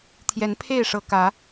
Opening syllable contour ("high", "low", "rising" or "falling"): rising